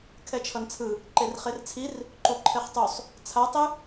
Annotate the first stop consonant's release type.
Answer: aspirated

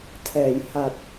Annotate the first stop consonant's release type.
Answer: aspirated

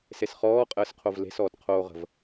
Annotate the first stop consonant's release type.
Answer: ejective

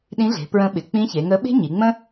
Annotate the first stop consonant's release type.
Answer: implosive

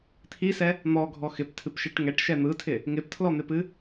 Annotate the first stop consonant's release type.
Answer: aspirated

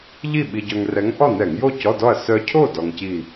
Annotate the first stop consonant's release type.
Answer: implosive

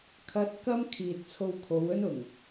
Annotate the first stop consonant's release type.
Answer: aspirated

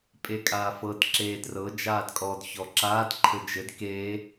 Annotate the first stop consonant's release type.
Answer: ejective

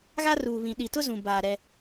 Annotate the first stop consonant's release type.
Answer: implosive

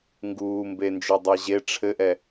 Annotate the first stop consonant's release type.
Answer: plain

